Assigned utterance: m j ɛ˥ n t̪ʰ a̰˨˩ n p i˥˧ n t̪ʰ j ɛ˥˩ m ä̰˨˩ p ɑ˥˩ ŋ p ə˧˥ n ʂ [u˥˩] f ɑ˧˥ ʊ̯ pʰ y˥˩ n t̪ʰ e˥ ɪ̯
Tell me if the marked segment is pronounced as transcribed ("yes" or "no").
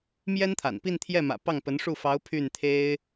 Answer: yes